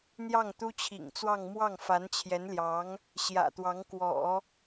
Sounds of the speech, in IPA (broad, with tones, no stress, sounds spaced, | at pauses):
n̪ j ɑ˥˩ ŋ t̪ u˥ t͡ɕʰ ḭ˨˩ ŋ t͡s w ɑ˥˧ ŋ m w ɑ˥˩ ŋ f a˧˥ n t͡ɕʰ j ɛ˧˥ n l j ɑ˧˥ ŋ | ɕ j ä̰˨˩ t̪ w ɑ˧˥ ŋ k w ɔ̰˨˩˦